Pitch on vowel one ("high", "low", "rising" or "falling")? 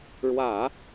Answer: low